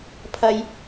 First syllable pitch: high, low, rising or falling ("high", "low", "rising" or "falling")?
low